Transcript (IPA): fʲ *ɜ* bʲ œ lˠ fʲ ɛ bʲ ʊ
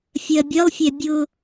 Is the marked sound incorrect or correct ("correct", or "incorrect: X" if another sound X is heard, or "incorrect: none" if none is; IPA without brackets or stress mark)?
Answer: correct